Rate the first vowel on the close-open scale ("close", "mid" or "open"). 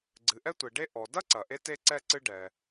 close